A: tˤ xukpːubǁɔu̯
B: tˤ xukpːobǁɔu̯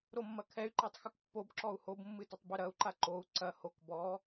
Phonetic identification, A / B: B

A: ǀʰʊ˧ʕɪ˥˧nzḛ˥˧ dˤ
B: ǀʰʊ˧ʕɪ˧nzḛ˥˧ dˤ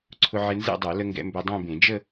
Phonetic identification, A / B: B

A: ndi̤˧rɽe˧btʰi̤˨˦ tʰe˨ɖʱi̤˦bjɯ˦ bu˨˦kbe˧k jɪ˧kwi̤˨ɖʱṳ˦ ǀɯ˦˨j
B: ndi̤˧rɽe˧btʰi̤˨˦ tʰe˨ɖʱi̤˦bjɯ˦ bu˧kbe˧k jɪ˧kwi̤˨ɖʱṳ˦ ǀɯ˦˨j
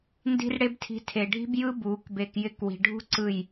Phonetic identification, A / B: A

